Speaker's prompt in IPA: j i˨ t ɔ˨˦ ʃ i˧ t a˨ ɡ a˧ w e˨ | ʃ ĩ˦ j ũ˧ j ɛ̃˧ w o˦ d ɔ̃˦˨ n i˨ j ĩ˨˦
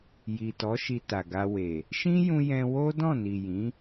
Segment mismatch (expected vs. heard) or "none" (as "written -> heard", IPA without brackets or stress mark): none